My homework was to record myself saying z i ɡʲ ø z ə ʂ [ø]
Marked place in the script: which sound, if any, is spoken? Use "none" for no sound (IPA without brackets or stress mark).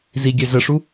u